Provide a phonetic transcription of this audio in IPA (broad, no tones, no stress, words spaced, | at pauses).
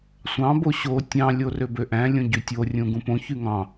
sʷɑ̃bo ɕo tʲɑ̃lʲorø bøʔæ̃ lʲõɟytʲorʲũ ɡũpõ çyŋɑ̃